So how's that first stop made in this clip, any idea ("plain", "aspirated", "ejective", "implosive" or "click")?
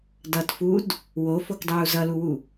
plain